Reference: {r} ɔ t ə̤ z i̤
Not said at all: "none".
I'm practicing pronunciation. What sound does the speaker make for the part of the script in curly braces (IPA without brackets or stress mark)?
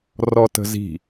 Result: r